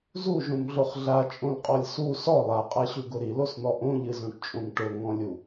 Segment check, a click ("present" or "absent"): absent